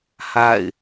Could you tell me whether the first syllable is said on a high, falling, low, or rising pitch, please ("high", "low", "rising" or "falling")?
falling